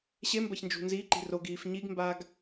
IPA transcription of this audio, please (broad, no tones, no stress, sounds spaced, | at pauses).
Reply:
ɕ e m b ɐ ç n d͡ʒ ṳ n z i ǃ i̤ r o ɡ iː f ɲ i ɡ m b aː ɡ